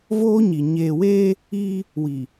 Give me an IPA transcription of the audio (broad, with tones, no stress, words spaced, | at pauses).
voː˦ɲi˨ ɲeː˨weː˦ | iː˦ | wi˨